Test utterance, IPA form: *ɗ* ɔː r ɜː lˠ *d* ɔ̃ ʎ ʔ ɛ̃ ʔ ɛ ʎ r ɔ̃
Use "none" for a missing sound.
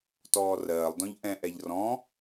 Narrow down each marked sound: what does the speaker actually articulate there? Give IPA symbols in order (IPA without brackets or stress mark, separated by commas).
t, d